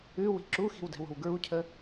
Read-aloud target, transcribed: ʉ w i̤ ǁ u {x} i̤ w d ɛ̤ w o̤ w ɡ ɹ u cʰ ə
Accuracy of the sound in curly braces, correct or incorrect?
correct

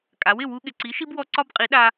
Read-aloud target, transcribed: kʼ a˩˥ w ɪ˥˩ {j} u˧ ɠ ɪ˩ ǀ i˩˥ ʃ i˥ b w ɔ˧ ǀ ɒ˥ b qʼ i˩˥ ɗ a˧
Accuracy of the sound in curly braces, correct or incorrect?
incorrect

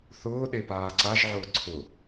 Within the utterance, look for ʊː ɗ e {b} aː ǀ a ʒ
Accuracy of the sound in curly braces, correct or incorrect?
incorrect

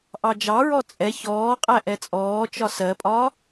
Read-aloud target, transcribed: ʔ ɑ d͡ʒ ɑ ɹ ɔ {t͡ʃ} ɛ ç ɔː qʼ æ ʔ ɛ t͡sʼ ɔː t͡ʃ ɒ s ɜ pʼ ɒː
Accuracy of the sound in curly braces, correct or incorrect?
incorrect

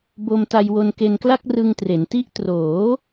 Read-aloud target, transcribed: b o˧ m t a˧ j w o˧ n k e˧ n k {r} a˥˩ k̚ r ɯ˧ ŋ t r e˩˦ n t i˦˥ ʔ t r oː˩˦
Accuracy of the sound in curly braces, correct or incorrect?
incorrect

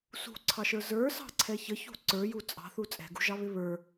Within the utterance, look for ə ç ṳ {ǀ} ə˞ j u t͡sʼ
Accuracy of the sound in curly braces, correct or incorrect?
correct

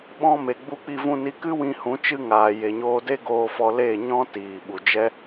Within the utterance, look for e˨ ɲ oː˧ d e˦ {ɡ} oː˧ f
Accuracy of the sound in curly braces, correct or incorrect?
correct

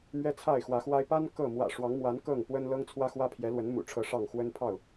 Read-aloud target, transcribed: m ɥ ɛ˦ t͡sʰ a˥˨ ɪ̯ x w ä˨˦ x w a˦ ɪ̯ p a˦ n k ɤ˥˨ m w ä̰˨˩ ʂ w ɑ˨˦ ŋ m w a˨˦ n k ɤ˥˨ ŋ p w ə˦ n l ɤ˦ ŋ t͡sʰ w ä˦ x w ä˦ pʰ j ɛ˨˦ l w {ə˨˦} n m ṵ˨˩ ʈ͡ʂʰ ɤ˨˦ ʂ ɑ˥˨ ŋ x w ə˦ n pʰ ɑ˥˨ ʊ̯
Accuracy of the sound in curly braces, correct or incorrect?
correct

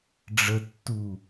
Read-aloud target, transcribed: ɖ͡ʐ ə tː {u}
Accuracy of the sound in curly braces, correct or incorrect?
correct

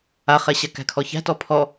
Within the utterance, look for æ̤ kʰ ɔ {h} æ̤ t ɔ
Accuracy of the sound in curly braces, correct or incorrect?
incorrect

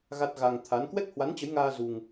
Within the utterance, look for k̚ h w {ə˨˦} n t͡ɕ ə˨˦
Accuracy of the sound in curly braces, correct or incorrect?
incorrect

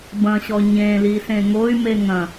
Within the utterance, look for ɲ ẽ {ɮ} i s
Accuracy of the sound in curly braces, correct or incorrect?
incorrect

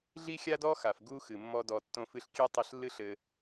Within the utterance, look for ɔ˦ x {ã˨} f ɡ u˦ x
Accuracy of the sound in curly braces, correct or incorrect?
incorrect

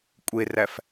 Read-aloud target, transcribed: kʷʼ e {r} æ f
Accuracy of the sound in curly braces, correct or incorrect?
correct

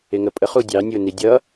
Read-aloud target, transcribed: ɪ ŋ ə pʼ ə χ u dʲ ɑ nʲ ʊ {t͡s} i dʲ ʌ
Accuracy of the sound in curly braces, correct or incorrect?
incorrect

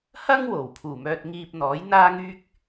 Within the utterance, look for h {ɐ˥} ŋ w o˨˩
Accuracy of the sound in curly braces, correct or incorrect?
correct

